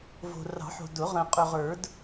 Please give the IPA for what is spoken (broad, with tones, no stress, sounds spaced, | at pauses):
v o̤˨ r ɑ̤˨˩˦ ħ o̤˨ d ʊ˨˩˦ ʁ ə̃ː˨ qʼ ɵ˨ ʁ ə˞˨˩˦ d